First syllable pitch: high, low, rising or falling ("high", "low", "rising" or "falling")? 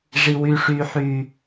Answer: low